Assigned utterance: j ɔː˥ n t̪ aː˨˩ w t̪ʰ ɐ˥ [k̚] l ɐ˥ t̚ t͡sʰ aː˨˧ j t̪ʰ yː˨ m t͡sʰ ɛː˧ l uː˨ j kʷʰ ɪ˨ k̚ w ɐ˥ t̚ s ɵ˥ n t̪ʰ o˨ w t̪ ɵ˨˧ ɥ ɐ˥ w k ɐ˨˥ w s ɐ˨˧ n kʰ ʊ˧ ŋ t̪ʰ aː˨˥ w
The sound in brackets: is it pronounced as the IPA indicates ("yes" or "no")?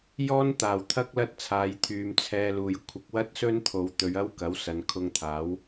yes